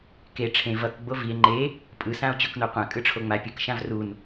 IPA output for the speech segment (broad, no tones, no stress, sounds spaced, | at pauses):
k e ʈ͡ʂʰ ẽ v ʌ k ɡ͡b o v i e̯ ŋ͡ǃ e | pʼ ɯ s ã o̯ t͡ɕ o k n o qʷ ã kʼ ɯ ʈ͡ʂʰ o ŋ͡m a pʲ ɯ k ʃ ã v r u n